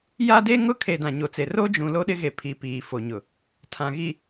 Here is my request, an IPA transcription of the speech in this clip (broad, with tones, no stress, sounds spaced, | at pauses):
j a˦ d e˦ ŋ ʊ˦˨ kʰ e˨ d ã˨ ɲ o˨ t͡s e˨ r o˦ d͡ʒ ũ˨ l o˦ ɗ ɪ˦ ɣ e˨ pʰ i˨ p iː˨ f o˨ ɲ ʊ˨ | tʰ ã˨ ɣ i˨